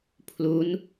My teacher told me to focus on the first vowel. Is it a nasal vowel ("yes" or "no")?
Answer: no